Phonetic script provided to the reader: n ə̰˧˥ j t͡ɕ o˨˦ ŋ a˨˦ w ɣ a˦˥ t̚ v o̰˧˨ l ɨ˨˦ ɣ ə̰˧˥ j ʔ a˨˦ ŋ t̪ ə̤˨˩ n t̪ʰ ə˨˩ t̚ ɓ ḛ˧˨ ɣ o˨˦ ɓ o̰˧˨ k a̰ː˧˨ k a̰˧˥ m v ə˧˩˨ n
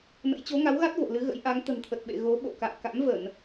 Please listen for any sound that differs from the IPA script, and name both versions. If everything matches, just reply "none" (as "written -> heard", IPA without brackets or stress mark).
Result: none